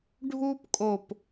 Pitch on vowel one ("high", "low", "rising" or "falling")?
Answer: high